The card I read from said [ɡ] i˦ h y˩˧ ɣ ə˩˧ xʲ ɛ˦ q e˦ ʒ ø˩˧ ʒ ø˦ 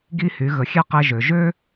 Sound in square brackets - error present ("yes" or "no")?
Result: no